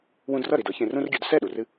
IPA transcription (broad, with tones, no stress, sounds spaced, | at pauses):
w ũ˧ d r ʌ˥˩ ɾ i˥˩ d ɤ˩˥ ç ẽ˧ r ũ˥ r ɡʲ u˩˥ d s ɛ˥˩ ɗ u˩ r ɨ˧